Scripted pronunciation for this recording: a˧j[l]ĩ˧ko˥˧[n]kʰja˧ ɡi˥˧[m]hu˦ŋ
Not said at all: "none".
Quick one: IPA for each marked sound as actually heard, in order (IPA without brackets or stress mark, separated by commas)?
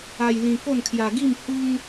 l, n, m